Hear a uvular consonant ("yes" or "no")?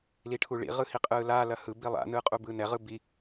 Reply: yes